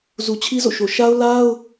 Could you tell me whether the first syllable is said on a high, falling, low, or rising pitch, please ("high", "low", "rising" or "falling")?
low